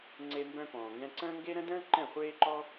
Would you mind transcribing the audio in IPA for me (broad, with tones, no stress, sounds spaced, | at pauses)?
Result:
ŋ͡ǀ e˧ m b œ̃˧ p ɔ̃ː˨ ŋ ɡ ɛ̃˧ ǀ ə̃ː˦ ŋ ɡ e˦ ɾ ə̃˦ d ə̃ː˦ ǃ ɛ̃˦˨ χʷ eː˦ ǃ ɔ˦